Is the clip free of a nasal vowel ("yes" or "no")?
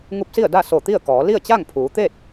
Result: yes